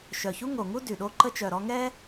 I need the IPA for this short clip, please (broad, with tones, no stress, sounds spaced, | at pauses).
ʃ œ˨˩ ç u˥ ŋ o˨˩ ŋ u˥ d y˨˩ ɗ o˥ ǃ ə˥ t͡ʃ œ˨˩ ɾ ɔ˥ ŋ ɛ˥